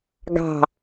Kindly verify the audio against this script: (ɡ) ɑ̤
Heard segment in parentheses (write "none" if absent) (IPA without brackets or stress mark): ɡ